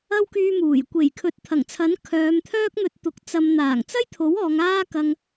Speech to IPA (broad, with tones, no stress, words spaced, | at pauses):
ɐ˥wkyː˧muː˨˩j kʷe˨˩jkʰɵ˨˥t̚t̪ʰɐ˨˩ŋt͡sʰɐ˨˥n kʰœː˨˧mt̪ʰœː˥k̚n̪ɵ˧t̚t̪ʊ˨˥k̚ t͡sɐ˨m n̪aː˨˩ŋt͡sɐ˥jt̪ʰo˨˥w ɔː˨˧ŋaː˥kɐ˧ŋ